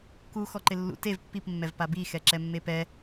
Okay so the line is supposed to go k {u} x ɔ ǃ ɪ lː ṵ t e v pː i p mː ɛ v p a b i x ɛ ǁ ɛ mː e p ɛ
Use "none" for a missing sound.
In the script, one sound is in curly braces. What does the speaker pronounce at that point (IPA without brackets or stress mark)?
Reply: u